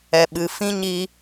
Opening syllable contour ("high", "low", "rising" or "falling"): low